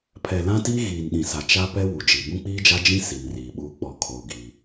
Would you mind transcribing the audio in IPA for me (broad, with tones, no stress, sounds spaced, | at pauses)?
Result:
pʰ ɛ˨ l ã˦ t iː˦ ɣ iː˨ n ɗ ĩ˨ s a˨ t͡ʃ a˦ p ɛ˦ w u˨ d͡ʒ i˨ b ũ˦ k͡p iː˦ d͡ʒ a˦ d͡ʒ ĩ˦ s i˨ n r iː˨ ɓ uː˦ k͡p ɔ˨ kʰ oː˨ ɡ i˦